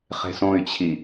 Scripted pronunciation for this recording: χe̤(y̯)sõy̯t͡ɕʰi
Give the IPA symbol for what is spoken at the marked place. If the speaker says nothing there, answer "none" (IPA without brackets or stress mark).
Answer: none